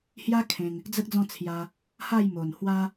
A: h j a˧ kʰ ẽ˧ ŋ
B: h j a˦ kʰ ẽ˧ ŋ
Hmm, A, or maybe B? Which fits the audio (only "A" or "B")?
B